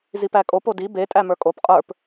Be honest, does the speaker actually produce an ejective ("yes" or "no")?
yes